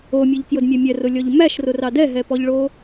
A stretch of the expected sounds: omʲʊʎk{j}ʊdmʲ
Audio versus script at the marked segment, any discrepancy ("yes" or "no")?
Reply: no